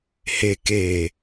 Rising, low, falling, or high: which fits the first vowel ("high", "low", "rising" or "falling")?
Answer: low